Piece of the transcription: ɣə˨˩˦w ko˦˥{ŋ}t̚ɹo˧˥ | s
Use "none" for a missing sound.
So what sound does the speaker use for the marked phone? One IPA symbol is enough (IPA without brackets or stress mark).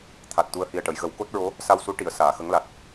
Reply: none